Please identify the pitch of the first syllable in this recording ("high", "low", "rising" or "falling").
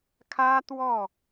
high